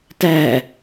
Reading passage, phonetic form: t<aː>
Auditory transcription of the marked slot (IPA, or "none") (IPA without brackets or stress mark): æː